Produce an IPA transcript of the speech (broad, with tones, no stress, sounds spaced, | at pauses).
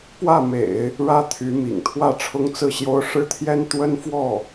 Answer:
p w ä˥˩ m ḛ˨˩˦ ɪ̯ | ɻ ä˥ t̪ʰ y˧˥ m ḭ˨˩ ŋ t̪ʰ w ä˥˩ ʈ͡ʂʰ ʊ˥ ŋ t͡s ɹ̩˥˩ ɕ j o˥ ʊ̯ ʂ ɻ̩˥ t̪ʰ j ɛ˥ n t̪ w ə˥ n f w ɔ˥˩